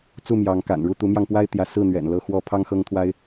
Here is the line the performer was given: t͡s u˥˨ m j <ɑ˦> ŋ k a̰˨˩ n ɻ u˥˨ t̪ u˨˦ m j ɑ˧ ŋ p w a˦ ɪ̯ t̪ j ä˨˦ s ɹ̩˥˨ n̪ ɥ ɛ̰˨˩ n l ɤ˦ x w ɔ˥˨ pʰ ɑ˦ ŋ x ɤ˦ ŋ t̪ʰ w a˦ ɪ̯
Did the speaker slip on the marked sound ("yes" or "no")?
yes